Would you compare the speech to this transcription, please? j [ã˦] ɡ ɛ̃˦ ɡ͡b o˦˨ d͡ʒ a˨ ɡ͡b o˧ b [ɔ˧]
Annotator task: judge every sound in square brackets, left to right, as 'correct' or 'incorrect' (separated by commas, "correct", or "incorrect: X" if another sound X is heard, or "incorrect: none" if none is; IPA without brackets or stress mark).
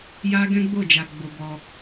incorrect: a˦, correct